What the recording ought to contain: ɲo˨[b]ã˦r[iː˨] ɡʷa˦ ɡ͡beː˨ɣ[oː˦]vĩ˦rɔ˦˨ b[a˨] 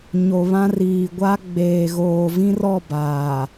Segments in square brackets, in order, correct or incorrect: incorrect: β, correct, incorrect: oː˨, incorrect: aː˨

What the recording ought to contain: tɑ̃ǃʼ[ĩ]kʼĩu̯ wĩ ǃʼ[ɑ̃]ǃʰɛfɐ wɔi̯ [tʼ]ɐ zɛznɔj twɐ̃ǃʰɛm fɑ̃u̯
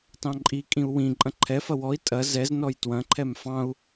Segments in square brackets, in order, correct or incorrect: incorrect: i, incorrect: ɐ̃, correct

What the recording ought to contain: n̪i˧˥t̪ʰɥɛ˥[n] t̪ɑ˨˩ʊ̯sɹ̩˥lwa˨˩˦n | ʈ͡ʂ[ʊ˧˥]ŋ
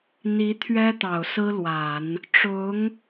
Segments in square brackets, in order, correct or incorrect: incorrect: none, correct

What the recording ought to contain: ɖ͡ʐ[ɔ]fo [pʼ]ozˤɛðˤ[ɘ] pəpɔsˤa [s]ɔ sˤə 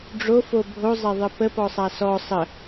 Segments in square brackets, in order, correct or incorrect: incorrect: o, incorrect: bʱ, correct, correct

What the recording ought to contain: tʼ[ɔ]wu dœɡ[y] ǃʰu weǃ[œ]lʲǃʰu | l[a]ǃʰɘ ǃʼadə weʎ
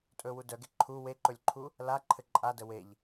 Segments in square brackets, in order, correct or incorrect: incorrect: ɵ, incorrect: e, incorrect: ɵ, correct

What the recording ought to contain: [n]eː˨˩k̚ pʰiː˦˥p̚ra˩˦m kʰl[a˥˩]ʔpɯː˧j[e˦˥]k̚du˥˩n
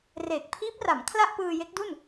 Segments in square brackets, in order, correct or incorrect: incorrect: r, correct, correct

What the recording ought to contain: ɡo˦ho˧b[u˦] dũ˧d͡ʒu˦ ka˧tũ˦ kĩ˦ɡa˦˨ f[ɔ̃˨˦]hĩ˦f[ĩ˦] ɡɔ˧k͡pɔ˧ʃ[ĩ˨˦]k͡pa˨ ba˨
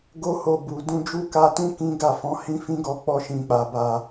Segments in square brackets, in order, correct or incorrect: incorrect: u˨, correct, correct, incorrect: ĩ˨

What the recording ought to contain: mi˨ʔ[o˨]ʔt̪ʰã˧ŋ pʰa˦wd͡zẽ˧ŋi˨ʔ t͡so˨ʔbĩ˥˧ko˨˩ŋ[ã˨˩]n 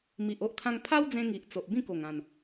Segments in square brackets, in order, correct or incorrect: incorrect: o˦, correct

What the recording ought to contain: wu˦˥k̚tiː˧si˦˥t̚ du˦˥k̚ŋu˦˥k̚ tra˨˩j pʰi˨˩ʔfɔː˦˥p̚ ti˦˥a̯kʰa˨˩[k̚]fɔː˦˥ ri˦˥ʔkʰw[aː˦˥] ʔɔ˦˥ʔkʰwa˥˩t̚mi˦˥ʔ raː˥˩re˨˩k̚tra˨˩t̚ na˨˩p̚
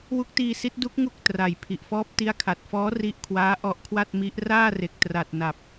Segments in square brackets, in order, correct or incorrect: incorrect: t̚, correct

